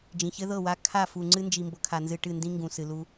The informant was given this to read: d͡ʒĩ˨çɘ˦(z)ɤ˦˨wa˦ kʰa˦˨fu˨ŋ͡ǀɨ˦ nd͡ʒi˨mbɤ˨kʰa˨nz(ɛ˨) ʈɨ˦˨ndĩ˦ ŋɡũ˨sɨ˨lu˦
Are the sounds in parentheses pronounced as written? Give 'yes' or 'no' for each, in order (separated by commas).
no, no